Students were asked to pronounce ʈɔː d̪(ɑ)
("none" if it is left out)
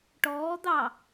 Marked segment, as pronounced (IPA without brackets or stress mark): ɑ